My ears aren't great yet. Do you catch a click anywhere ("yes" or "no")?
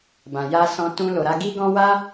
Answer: no